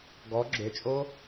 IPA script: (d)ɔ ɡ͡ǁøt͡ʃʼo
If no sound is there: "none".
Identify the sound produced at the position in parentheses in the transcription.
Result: ɡ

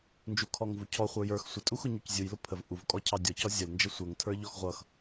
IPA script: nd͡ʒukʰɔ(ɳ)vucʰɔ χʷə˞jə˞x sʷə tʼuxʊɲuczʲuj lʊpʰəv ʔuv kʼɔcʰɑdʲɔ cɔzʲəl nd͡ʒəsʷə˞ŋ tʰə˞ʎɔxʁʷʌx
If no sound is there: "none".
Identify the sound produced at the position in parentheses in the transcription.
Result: ŋ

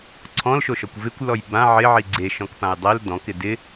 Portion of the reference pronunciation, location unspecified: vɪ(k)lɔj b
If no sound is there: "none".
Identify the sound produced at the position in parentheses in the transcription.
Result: kʷ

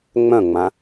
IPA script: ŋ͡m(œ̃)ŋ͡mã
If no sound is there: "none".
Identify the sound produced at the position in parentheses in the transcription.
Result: œ̃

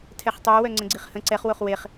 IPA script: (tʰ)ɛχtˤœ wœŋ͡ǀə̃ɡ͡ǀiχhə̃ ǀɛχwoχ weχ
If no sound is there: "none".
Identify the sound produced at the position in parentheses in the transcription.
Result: tʰ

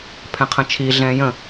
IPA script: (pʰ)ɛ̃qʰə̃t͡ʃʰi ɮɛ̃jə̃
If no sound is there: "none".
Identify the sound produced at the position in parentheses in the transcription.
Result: pʰ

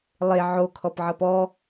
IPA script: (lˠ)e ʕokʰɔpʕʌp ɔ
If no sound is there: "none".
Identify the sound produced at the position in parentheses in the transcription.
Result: lˠ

